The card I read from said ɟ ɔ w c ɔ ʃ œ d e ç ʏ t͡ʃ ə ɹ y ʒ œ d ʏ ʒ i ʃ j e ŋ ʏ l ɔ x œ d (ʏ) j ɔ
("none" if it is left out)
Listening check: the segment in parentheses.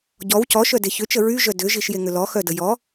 ə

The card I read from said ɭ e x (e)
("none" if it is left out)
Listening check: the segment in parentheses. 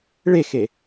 e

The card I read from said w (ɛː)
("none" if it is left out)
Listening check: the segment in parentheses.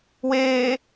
eː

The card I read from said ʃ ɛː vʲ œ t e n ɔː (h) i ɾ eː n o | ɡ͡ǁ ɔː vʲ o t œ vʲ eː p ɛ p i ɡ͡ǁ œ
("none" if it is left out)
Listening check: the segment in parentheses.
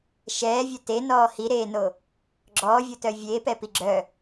h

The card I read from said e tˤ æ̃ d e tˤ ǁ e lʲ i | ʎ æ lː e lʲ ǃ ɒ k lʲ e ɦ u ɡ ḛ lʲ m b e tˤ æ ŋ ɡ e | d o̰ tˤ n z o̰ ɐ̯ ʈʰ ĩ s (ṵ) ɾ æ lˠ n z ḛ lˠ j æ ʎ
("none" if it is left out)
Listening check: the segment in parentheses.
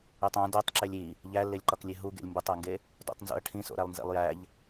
o̰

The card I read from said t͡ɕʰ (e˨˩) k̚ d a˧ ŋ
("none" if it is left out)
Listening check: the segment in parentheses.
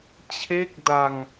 e˥˩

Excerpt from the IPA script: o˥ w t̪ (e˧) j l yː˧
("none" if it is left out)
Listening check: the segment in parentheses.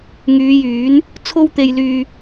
e˧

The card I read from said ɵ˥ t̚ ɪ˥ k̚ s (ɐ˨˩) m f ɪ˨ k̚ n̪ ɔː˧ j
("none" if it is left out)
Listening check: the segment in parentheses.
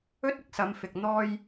ɐ˨˧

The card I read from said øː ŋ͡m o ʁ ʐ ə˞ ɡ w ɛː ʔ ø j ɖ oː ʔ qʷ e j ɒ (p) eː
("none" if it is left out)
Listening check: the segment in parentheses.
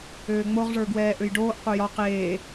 q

